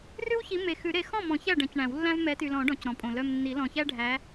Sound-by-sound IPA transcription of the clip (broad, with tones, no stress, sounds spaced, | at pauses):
r ʉ˦ w ç i˨˦ m e˨ x ʉ˨˩˦ ɾ e˨˦ x ɔ̃˥˩ m ɔ̃˨˩˦ ç æ˥˩ ɖ ɛ̃˨˩˦ c ɳ æ̃˨˩˦ w lː æ̃˦ v m ɛ˨˦ t y˨ l ɔ̃˨˩˦ ɖ ɔ̃˨˦ c ɾ ɔ̃˨ pʼ õ˨ l œ˨ m nː i˨˩˦ l ɔ̃˨ ç æ˦ ɖʱ æ˨˦